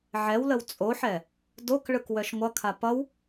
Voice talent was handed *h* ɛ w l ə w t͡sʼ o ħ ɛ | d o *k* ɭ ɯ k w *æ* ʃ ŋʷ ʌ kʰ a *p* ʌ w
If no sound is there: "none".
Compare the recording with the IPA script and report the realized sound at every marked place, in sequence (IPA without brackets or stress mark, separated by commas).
ʕ, k, œ, p